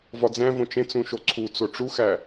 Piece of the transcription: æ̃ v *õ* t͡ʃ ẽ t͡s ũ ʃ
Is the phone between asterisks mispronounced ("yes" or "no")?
no